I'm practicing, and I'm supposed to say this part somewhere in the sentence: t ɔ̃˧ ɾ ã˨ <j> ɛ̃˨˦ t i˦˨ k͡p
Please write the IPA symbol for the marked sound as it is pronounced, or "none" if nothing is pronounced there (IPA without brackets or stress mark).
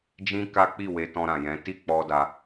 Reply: j